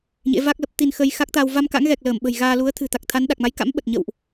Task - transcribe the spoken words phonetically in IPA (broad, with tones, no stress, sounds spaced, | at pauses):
ɲ ḛ˧˥ v a˦˥ k̚ l ə˦˥ p̚ t̪ i˧ n x ə˧ j x a˦˥ k̚ t̪ aː˧ w v a˧ m k a̰˧˥ ŋ ɣ ɛ˨˩ k̚ l əː˧˩ m ɓ ə̤˨˩ j ɣ aː˧ l u˨˦ ə̯ t̪ʰ ɨ̤˨˩ t̪ a˨˩ k̚ t̪ʰ a˨˦ n ɗ a˨˩ k̚ m a˨˦ j k a̰˧˥ m ɓ ə˨˩ t̚ ɲ ə̰˧˨ w ʔ